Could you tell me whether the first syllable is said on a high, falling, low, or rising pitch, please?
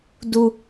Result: high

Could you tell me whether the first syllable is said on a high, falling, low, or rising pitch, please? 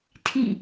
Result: falling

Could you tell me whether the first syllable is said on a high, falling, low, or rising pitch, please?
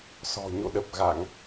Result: low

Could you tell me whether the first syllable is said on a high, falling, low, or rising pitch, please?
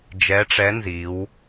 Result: rising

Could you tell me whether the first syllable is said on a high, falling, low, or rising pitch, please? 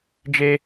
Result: high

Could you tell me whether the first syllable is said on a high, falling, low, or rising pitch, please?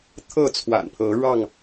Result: falling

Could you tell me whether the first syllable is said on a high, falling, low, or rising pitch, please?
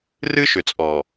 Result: high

